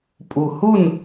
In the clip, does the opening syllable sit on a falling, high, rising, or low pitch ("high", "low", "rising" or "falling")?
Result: low